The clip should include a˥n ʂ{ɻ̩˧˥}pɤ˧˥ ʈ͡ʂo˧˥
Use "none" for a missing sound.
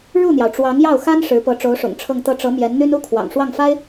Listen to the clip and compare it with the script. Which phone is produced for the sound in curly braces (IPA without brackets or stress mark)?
ɻ̩˧˥